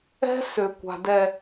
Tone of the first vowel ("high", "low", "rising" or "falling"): high